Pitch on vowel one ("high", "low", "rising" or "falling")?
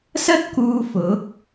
high